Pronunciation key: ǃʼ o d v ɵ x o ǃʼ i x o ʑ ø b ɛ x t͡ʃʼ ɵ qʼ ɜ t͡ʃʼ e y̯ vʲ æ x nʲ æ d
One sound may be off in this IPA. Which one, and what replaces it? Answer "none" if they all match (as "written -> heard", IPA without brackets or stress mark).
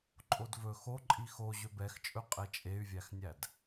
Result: ɜ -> ɛ